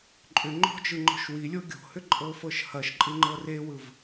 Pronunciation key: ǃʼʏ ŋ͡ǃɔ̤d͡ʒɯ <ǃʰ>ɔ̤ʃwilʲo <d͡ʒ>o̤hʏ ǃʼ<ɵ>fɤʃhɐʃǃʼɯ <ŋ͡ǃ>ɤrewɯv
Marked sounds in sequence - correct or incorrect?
incorrect, incorrect, incorrect, correct

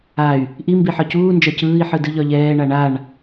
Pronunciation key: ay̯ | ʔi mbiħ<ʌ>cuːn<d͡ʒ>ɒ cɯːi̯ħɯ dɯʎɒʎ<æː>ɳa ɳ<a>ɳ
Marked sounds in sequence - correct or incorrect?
incorrect, correct, incorrect, correct

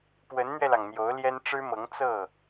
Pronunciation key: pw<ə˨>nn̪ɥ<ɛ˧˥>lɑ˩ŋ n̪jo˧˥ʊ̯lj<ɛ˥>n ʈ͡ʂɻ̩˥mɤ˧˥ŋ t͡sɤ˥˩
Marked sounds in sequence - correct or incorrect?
incorrect, incorrect, correct

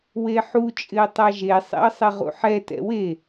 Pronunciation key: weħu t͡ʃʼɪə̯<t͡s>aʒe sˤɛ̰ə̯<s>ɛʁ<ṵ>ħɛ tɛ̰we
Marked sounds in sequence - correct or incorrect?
incorrect, incorrect, correct

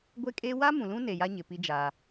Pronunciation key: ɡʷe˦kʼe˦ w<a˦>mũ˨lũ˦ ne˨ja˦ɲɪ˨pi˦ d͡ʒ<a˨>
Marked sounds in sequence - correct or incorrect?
correct, incorrect

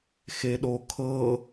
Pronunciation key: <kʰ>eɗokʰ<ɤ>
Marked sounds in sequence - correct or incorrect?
incorrect, correct

